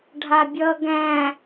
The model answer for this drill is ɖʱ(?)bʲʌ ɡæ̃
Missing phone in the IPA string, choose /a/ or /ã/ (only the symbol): a